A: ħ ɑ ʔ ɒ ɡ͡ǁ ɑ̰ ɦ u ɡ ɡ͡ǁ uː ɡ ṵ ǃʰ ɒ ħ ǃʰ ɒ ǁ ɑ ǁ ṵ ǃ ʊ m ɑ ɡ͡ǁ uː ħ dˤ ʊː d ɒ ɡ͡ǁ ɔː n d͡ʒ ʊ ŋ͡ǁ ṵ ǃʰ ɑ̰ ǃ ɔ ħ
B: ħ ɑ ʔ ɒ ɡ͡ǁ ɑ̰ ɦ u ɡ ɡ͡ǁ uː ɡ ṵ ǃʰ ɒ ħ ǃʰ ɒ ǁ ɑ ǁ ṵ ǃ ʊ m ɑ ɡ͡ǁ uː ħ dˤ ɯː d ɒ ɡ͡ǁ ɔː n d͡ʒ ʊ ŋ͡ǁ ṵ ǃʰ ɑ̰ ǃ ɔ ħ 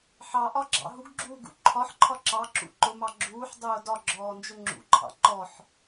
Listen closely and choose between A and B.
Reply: A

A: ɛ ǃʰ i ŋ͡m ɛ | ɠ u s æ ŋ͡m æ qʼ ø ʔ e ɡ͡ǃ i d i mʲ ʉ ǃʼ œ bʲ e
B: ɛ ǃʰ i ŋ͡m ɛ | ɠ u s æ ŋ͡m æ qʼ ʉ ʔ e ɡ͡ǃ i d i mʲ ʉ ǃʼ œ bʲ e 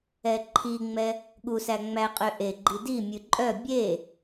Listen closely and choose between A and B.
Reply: A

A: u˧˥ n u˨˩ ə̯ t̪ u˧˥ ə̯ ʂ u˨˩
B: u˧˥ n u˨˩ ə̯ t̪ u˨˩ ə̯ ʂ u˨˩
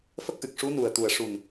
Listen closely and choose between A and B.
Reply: B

